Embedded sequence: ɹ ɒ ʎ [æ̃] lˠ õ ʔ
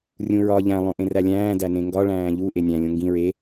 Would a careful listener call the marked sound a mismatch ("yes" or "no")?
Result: no